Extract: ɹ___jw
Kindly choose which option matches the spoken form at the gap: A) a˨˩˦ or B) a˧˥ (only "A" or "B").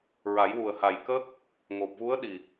A